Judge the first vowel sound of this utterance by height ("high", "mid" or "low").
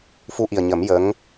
high